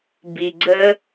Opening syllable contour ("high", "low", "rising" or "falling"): low